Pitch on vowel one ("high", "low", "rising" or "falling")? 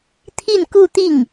falling